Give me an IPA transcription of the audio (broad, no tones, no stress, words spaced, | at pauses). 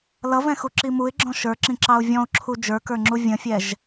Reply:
lʌvɛ̃xuǁi muɪ̯ɡ͡ǁɔ̃ ʃə˞ǁĩǁɑʊ̯ vʲɔ̃ʊ̯ǁʰu d͡ʒə˞kə˞ŋ͡ǁu vʲə̃fʲɛʒ